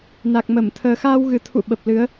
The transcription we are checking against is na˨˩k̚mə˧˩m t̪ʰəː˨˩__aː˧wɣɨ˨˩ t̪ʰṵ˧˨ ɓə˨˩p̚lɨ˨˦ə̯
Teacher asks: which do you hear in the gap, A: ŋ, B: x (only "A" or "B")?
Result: B